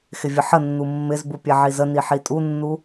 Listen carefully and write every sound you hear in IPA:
x ɪ vʲ ə ħ ə nː u mː ɪ z b u pʲ ɛ ʕ i z ə n i ħ i tʼ u nː u

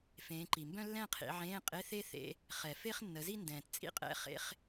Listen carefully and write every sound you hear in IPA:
f ẽː˨˦ ǃ i˨ m b œ̃˥ lː ɛ̃˥˧ qʰ ḭ˨˦ ʕ ẽː˧˥˧ qʼ e˧˥˧ θ e˥ θ ḛ˧˥˧ | χ ɛ˨ f e˥ χ nː ə˨˦ z i˥ n d ɛ̃ː˨ t t͡sʼ ḭ˥ qʼ ɛ̰˧˥˧ χ ḛ˧˥˧ χ

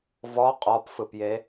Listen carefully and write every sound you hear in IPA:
v ɔ qʼ ɔ p f ɯ p j e

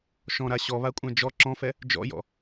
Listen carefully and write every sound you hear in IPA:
ʃ ɔ̃ ɾ a ɕ ɔ β a kʷʼ ã d͡ʒ ɔ ǁ ɔ̃ f ɛ | d͡ʒ ɔ̰ j ɔ̰

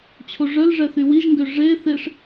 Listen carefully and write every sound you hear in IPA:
t͡ɕʰ o ʐ œ l ʐ ɛ θ y w i ʒ ŋ ɡ ø ʐ e θ e ʂ

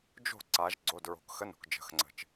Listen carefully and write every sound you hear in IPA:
d͡ʒ o̤˥˩ ǀ a˩˧ ʒ ɡ͡ǀ o˩˧˩ d ɹ o̤˩˧ k x ə˨˥ n o̤˩ k d͡ʒ ə̤˩˧˩ x ŋ͡ǀ ə̤˩ t͡ʃ

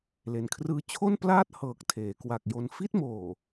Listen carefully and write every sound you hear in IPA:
l e˩˦ n kʰ r ɯː˧ t͡ɕʰ o˥˩ n p l aː˥˩ t̚ h ɤː˨˩ k̚ tʰ eː˩˦ k w a˨˩ k̚ j o˧ n f i˥˩ t̚ m oː˨˩

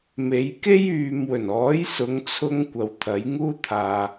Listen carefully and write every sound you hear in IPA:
m e˨˧ j k e˥ j yː˨ m w ɵ˨˩ n ɔː˨˥ j s ʊ˨˧ ŋ t͡sʰ ʊ˧ ŋ kʷ ɐ˨ w t̪ʰ ɐ˨˥ j ŋ uː˥ t̪ʰ aː˨

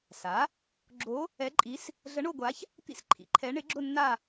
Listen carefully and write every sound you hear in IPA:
s a˩˥ | ɡ͡ǁ o˧˥ | ɛ˧˥ ǃʼ i˧˥ s | ɮ ə˧˥ ɳ o˥˧ ɡʷ a˧˥ ç | t̪ ḭ˥˧ s ǃʰ ḭ˩˥ ǃʰ ɛ˧˥ ɳ ɪ˧˥ ɡ͡ǁ ʊ˥˧ nː a˥˧

